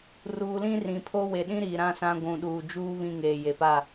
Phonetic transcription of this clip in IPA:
r uː˨ l ĩ˦ r ĩ˨ pʰ o˦ w e˨ ɗ ĩ˦ ɾ iː˨ ɾ ã˦ s ã˦ ɡʷ ũ˨ ɗ uː˨ d͡ʒ uː˦ β ĩ˦ ŋ eː˨ j e˨ p a˦˨

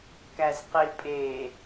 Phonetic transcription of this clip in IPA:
k æ z q i pʼ e

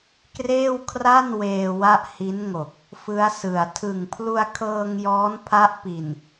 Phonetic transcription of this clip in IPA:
k r eː˥˩ w kʰ r a˥˩ n w eː˧ w a˥˩ ʔ h i˦˥ n ŋ o˨˩ k̚ | f ɯ˦˥ a̯ s ɯ˨˩ a̯ tʰ ɯ˨˩ ŋ pʰ l u˧ a̯ kʰ ɤː˧ ŋ j ɔː˦˥ n pʰ a˦˥ ʔ p i˨˩ n

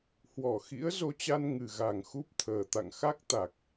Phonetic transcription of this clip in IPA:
h w ɔ˧˩ x ḭ˧˥ ə̯ z o˧ t͡ɕ a˧ n ŋ ɨ˨˩ ɣ a˨˩ ŋ x u˦˥ p̚ t̪ʰ əː˨˩ t̪ a̰˧˨ ŋ x a˦˥ k̚ t̪ a˨˩ k̚

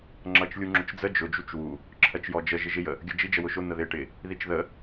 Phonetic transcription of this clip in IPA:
ŋ͡ǁ ʌ t͡ʃ lʲ u ŋ͡ǁ ʊ t͡ʃ d͡z ə d͡ʒ ʊ d͡ʒ u t͡ʃ w u | ǁʰ ɜ t͡ʃ j ɔ d͡ʒ ə ʒ ɪ ʒ ɪ j ə | ɡʲ ɜ d͡ʒ i d͡ʒ ə w ʊ ʃ ʊ n̪ ə ð ɪ ʈ ɪ | ð i t͡ʃ ð ə

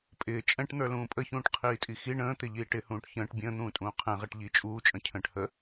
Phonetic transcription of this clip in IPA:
pʼ ɪː t͡ʃʼ ɛ̃ ʈ n̪ ə˞ l ũː pʼ ə ç ũː ʈ qʰ iː tʼ i x i ɳ ə̃ː t̪ ɪ ʎ iː ʈ ɪ h ũː ʈ ç ə̃ː ʈ bʲ ə̃ː n̪ ũː tʼ ũː qʰ ɛ̃ ʁ ɛ ʈ ʎ i t͡ʃʼ uː t͡ʃʼ ə̃ cʰ ə̃ː ʈ h ə

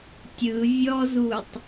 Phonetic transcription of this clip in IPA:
tʲ ɯ vʲ ɔ z u tˤ

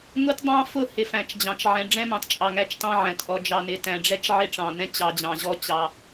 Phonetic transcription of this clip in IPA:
ŋ ʊ˦ t dˤ ɑ̃˦ f ʊ˦˨ h ɪ˨ f æ̃˨ t͡ʃ d͡ʑ ɑ̃˨ t͡ʃ ʕ ɛ̃˨ ɖ͡ʐ ɛ̃˦ m ɑ̃˨ t t͡ʃʼ ɑ˨ ŋ æ˦˨ t͡ʃ t ɑ̃˦ ʕ æ̃˨ t ʔ ɔ˨ d͡ʒ ɑ˨ n ɪ˨ t æ̃˨ ɖ͡ʐ ɛ˦ t͡ʃ ʕ ɪ˦ ʈ͡ʂ ɑ̃˨ n ɛ̃˦ t͡ɕ ɑ˨ d͡ʑ ɑ̃˨ ʑ ɔ˦ t͡ɕ ɑ˨

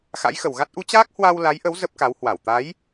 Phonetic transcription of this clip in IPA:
x a̰˧˥ j x ə˨˩ w ɣ a˦˥ t̚ ʔ u˨˦ t͡ɕ aː˦˥ k̚ h w a˧ w l a˨˦ j ʔ ə˨˦ w z ə˦˥ p̚ k a˨˦ w h w a˧˩ w t̪ a˨˦ j

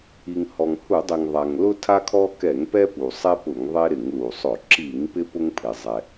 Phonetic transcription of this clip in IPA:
i˩ ŋ h ɔ˩ ŋ h u˧˩˧ dˤ i˩ ŋ ðˤ a˩ ŋ l ʊ˦ tʰ a˦ kʰ ɔ˦ k ɛ˧˩˧ ŋ p ɛ˦ p u˩ sˤ e˦ p ʊ˧˩˧ ŋ ðˤ e˦ ɾ ɪ˧˩˧ ŋ l u˩ sˤ ʊ˧˩˧ ǁ i˧˩˧ ŋ p ɪ˦ p ʊ˦ ŋ pʰ ɪ˩ zˤ ɛ˩

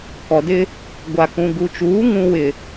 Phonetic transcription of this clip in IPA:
k ɔ˨ d ɪ˦ | ɡʷ a˨ k ũ˨ ɡ u˨ t͡ʃ uː˨˦ ŋ ũ˦ w ɪ˨

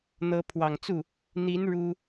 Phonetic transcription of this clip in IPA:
n̪ ɤ˧˥ pʰ w ɑ˨˩ ŋ t͡s u˥˩ | n̪ i˧˥ n ɻ u˥

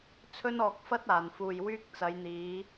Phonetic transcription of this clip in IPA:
t͡sʰ ɵ˥ n ɔː˧ k̚ f ɐ˥ t̚ aː˨ n f uː˧ j w yː˥ k̚ t͡s ɐ˨˧ j n̪ iː˨˧

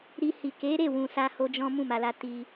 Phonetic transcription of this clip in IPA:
ɾ i˧ h i˨ k e˨˦ ɾ e˦˨ w ũ˨ s a˧ h o˧ d͡ʒ ɔ̃˦ m ũ˦˨ m a˨ l a˧ t i˧

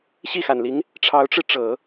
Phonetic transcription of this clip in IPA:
ɕ i˥˩ x a˨˩ n l i˧˥ ŋ | ʈ͡ʂʰ ɑ˧˥ ʊ̯ ʈ͡ʂ ɻ̩˧ ʈ͡ʂ ɤ˨˩˦

